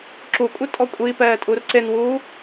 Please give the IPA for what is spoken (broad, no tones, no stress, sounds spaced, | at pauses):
ǁ u kʷʼ ɪ tʼ ɔ kʷʼ i p ɛː tʼ u r ǀ e n w uː